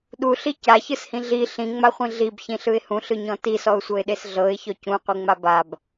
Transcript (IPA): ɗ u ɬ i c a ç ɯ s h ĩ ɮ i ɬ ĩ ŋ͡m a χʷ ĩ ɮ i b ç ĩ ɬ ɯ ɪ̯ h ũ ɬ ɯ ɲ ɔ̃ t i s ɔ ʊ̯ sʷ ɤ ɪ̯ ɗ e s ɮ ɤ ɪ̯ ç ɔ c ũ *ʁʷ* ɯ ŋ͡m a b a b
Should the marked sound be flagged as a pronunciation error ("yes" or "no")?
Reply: yes